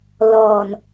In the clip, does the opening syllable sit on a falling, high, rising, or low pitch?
low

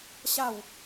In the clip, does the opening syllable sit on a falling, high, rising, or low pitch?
falling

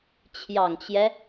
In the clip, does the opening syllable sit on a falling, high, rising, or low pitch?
low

